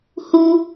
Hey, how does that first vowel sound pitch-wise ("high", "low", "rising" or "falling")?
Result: high